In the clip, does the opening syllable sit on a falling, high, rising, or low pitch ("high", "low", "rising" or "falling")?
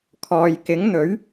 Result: low